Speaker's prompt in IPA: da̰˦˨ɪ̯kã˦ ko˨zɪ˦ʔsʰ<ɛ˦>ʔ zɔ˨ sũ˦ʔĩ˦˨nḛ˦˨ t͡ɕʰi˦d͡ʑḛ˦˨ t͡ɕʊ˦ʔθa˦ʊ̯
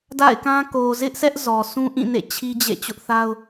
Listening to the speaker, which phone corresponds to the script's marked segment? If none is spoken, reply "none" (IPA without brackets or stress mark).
ɛ˦